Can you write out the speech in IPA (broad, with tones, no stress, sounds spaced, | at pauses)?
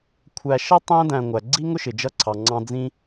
kʷʰ æ˨ ʃ ʌ˥ tˤ æ̃˥ d æ̃˨ ŋʷ æ˩ ɡ͡ǀ i˥ ŋ ʊ˥ ʃ ɪ˩ d͡ʒ ʌ˥ ǀʰ ɑ˩ ŋ͡ǀ ɑ̃˦ d͡z ĩ˦